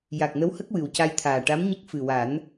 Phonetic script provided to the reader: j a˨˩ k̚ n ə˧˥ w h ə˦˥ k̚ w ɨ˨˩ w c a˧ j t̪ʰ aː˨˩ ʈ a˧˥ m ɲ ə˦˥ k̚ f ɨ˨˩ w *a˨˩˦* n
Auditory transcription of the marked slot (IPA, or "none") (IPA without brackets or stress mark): a˨˩˦